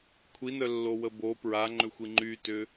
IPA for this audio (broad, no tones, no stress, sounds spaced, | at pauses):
kʷʰ i n œ lː o w ə b o p ɹ a ŋ͡ǃ ʏ xʷ i ŋ͡ǃ y t ʏ